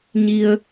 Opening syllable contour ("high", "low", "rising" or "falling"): low